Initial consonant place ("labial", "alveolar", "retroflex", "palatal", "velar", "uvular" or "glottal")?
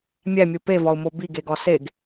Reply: labial